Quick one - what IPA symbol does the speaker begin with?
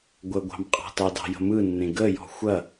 ɡʷ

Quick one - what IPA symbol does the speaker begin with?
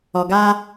ɔ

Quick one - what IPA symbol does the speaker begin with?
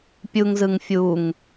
pʲ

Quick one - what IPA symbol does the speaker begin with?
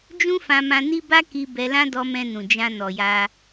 d͡ʒ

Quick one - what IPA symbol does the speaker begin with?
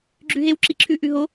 ɡ͡ǁ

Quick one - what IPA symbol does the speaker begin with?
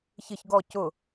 ç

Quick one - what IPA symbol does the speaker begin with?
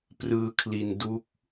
p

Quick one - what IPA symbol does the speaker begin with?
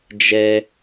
d͡ʒ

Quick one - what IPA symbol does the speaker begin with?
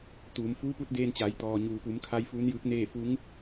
t̪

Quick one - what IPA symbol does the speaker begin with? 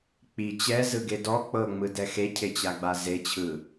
k͡p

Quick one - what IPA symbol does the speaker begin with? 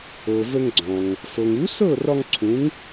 ɤ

